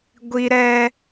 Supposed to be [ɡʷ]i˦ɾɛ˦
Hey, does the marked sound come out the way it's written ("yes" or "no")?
yes